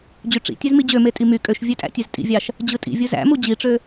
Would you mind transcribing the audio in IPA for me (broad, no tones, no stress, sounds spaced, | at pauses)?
d͡ʑ y ʈ͡ʂ ḭ tʲ e z m i d͡ʑ ø m e tʼ i m y kʼ ø ʃ vʲ ø tʼ æ̰ tʲ e z tʼ ḭ vʲ ɑ ʃ | d͡ʑ ɯ tʼ ḭ vʲ ɯ z æ̰ m u d͡ʑ i ʈ͡ʂ ø